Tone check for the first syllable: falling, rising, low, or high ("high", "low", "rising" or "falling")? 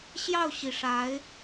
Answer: falling